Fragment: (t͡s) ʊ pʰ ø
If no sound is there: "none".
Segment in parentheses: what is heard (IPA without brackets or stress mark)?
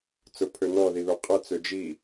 t͡s